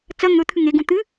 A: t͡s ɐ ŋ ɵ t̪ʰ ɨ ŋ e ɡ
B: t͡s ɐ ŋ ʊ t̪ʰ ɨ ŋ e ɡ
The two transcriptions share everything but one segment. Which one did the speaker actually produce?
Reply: A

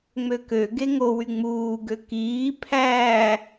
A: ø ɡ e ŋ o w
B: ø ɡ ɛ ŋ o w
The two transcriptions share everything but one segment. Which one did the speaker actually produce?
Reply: A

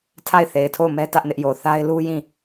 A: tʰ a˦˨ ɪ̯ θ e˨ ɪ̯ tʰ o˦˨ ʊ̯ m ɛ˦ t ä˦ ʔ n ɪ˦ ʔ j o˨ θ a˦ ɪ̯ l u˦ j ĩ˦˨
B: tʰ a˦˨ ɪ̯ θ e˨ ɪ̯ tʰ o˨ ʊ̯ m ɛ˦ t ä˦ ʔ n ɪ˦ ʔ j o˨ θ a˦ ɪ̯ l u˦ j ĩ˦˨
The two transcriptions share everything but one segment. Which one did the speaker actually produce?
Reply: A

